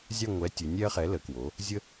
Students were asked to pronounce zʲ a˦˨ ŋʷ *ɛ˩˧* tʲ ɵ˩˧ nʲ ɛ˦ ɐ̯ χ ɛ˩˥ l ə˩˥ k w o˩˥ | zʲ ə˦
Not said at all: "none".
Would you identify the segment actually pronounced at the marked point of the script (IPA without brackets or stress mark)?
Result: ɛ˩˥